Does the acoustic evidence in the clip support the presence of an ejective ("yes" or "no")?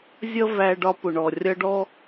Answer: no